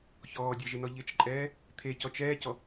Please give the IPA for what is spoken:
ç ɔː dʲ ɛ ʒ ɪ n ɔ ʎ ɪ t͡ʃ ǃʼ ɛː | t̪ʰ e c ɔ t͡ʃ ɛː c ɔ

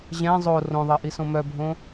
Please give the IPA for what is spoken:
ʑ ɛ̃ zˤ o r õ ðˤ ɜ ʔ i s õ m œ bʱ õ

